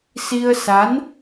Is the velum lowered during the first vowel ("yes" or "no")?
no